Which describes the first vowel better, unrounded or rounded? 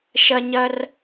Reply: unrounded